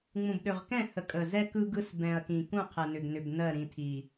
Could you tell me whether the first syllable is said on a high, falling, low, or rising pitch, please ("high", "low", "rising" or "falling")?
low